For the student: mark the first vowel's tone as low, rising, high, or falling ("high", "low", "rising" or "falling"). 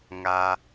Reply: low